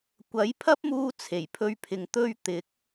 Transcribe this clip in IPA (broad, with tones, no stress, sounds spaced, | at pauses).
kʷ ɐ˨˥ j pʰ ɐ˥ p̚ m uː˧ t͡sʰ e˨˩ j pʰ ɵ˧ ɥ pʰ ɪ˨ ŋ t̪ ɵ˧ ɥ t̪ ɪ˨˥ k̚